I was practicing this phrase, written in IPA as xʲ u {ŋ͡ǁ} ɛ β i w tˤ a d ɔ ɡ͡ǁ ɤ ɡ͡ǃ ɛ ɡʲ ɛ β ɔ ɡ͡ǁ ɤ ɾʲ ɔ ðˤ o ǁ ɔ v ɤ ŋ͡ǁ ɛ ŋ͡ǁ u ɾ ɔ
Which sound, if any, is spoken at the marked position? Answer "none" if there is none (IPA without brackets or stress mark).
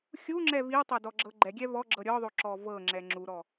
ŋ͡ǁ